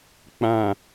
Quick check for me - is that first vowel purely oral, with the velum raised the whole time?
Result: no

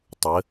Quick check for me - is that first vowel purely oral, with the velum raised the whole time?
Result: yes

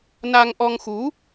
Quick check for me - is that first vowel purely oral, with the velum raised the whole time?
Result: yes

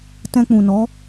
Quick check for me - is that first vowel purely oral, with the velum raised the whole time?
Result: no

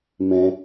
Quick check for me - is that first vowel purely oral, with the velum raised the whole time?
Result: no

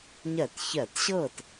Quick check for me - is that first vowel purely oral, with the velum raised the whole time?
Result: yes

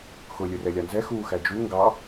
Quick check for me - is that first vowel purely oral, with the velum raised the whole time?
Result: yes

